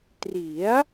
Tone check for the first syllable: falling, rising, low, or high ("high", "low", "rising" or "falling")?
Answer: rising